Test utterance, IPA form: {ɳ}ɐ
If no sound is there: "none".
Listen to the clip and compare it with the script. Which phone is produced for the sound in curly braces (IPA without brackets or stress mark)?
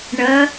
ɳ